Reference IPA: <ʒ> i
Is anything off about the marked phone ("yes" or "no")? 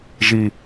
no